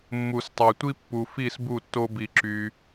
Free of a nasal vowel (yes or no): yes